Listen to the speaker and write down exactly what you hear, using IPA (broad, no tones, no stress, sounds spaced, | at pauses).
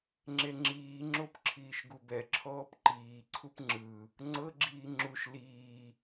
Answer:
ŋ͡ǁ e ŋ͡ǁ iː ŋ͡ǁ o p ǁʰ iː ʃ ɡ u b ɛ ǁʰ ɔː p ǃ iː ǀʰ u p ŋ͡ǁ ɯ | ŋ͡ǀ ɤ ɡ͡ǁ iː ŋ͡ǁ u ʃ l iː